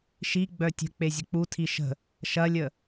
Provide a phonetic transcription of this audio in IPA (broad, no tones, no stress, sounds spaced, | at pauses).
ʃ i ɡ͡b œ tʲ ə̤ k͡p e zʲ ə k͡p u tʰ i ʃ ə̤ | ʃ ɐ lʲ ə